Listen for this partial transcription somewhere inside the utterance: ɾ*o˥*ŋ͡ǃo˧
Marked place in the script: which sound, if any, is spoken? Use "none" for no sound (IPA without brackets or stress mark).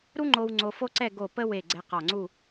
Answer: u˥